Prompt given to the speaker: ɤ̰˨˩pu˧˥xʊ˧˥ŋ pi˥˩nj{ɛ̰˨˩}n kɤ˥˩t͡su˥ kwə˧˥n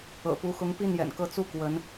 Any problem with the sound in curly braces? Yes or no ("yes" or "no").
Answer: no